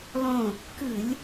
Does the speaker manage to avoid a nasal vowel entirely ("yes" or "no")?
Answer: no